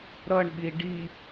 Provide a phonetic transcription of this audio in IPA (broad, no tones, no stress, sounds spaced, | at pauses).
ɾ ʌ ɳ ɓ i ɖ i